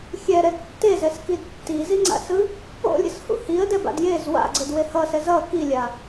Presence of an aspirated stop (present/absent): absent